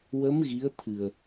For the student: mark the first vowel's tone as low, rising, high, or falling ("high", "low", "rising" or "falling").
rising